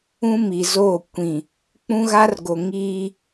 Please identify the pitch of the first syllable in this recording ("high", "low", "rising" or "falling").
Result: high